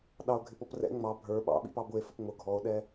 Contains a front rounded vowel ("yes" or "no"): no